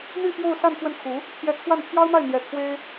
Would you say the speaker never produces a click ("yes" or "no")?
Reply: yes